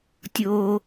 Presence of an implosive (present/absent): absent